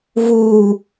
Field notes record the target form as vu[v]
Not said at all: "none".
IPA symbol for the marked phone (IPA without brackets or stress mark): none